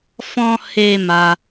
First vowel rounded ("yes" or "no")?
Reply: yes